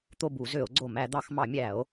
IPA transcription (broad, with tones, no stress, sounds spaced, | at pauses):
t̪ o˦˨ b u˧˩˧ z ø˧˩˧ o̯ ɡ͡ǀ o˧˩˧ m æ˧˩˧ d̪ ɑ˧˩˧ x m ɑ˧˩˧ mʲ æ˧˩˧ o̯